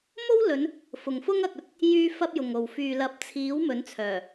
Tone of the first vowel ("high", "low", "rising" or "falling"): high